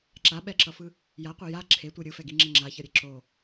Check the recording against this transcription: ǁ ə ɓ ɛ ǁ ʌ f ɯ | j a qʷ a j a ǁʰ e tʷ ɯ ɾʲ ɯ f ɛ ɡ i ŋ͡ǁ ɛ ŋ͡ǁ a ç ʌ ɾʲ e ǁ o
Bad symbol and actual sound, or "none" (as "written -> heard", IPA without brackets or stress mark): ə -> a